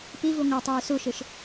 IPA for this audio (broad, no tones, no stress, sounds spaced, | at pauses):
p i v u ŋʷ ɑ tˤ yː s u ʃ ɯ ʃ